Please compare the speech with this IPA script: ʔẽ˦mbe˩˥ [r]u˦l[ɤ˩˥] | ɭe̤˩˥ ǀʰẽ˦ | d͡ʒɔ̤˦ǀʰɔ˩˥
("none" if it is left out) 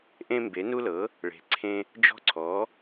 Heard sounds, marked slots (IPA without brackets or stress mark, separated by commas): n, ɤ˩˥